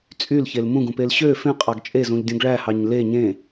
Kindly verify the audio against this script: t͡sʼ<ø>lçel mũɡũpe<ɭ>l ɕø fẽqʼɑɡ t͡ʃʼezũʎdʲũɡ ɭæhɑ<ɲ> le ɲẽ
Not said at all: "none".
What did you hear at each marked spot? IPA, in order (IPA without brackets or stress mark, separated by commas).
y, none, ɲ